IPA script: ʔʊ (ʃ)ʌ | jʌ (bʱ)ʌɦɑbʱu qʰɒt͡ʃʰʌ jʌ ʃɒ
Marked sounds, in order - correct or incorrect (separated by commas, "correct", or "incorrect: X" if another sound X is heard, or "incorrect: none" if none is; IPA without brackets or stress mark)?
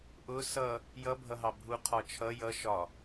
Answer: incorrect: s, correct